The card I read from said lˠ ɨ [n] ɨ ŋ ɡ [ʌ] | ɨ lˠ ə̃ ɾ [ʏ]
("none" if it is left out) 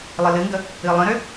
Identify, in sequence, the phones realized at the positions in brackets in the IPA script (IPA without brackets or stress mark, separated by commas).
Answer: l, ə, ʏ